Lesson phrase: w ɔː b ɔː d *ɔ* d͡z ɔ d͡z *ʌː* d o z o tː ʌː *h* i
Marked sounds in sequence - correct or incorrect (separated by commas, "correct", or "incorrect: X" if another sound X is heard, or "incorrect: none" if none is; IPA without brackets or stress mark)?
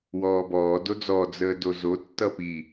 incorrect: o, incorrect: əː, incorrect: p